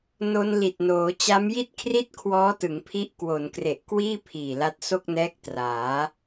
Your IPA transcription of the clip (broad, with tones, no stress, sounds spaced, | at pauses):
n o˧ n l i˨˩ t̚ n oː˩˦ t͡ɕ a˦˥ m j i˥˩ t̚ kʰ r i˥˩ t̚ kʰ w ɔː˦˥ t ɯ˩˦ ŋ pʰ i˦˥ ʔ k w o˩˦ n k r e˨˩ ʔ k w iː˥˩ pʰ iː˨˩ l a˦˥ t̚ s o˥˩ k̚ n ɛː˦˥ k̚ t r aː˩˦